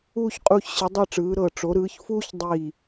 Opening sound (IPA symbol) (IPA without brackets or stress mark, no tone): uː